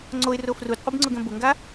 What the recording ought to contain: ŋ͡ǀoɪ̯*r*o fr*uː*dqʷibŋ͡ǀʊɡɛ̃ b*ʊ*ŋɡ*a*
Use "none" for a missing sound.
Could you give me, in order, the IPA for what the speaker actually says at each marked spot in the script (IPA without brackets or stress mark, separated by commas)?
r, u, ʊ, a